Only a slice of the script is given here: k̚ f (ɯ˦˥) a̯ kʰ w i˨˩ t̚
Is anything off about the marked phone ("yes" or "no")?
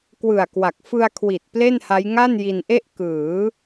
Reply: yes